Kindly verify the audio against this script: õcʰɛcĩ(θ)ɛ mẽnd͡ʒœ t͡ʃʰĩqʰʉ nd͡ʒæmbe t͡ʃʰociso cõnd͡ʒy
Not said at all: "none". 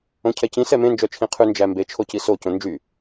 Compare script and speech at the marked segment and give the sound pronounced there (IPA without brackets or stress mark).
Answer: s